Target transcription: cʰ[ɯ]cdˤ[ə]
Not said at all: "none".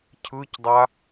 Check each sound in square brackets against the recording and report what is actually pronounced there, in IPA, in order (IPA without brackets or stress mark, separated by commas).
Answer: ɯ, a